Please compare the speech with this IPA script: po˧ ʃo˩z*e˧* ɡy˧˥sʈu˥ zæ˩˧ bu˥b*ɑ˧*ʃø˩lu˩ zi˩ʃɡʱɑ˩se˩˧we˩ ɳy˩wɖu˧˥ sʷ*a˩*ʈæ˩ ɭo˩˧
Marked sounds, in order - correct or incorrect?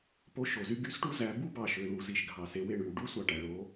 incorrect: y˧, incorrect: ɑ˩, incorrect: ɑ˩

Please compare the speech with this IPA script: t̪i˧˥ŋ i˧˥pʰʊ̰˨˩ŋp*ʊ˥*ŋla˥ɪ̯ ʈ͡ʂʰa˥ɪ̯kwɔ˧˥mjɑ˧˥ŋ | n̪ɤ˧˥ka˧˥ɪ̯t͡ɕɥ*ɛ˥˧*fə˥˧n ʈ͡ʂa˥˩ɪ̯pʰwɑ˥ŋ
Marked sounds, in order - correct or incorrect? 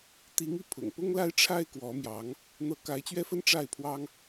correct, correct

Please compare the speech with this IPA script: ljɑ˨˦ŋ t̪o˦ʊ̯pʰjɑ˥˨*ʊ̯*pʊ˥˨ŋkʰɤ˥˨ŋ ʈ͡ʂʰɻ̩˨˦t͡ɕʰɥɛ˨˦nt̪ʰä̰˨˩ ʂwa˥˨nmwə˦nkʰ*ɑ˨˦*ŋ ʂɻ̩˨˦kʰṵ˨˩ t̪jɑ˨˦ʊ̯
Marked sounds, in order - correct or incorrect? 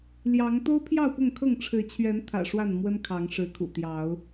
correct, correct

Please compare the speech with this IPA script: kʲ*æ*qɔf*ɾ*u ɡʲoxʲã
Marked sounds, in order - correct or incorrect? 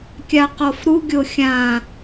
incorrect: a, correct

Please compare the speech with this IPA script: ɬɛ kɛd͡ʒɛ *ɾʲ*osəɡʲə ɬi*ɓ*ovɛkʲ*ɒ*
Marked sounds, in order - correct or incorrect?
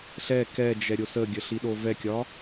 correct, incorrect: ɗ, correct

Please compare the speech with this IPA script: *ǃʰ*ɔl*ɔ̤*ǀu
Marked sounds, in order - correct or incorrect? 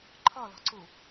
correct, correct

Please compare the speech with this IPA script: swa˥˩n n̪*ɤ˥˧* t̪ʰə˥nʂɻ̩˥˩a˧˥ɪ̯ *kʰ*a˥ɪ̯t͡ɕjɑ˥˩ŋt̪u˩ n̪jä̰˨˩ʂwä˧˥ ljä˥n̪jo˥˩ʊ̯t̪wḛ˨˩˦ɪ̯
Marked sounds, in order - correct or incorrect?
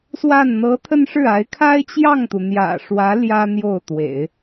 incorrect: ɤ˧˥, correct

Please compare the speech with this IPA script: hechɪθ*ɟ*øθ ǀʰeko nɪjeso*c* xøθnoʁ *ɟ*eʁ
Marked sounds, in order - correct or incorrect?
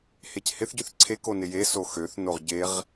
correct, incorrect: none, correct

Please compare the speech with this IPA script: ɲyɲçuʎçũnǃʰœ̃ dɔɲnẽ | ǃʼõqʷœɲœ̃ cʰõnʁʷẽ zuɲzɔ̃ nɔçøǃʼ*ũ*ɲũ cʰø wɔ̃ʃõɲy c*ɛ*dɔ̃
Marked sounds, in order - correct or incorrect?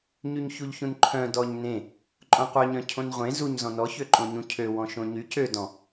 incorrect: õ, incorrect: ø

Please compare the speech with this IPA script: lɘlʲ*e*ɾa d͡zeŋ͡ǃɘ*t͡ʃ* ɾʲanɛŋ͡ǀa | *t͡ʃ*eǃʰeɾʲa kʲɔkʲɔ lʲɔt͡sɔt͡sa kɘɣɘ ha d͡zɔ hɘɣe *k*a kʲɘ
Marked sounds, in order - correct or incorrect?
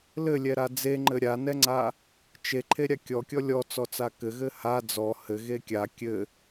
incorrect: ɛ, incorrect: none, correct, incorrect: kʲ

